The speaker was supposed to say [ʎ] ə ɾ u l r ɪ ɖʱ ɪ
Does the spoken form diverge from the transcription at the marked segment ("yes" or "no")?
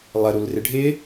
yes